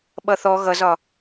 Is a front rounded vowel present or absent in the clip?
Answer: absent